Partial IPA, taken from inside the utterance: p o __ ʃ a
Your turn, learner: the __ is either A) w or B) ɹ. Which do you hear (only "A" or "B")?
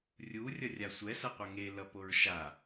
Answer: B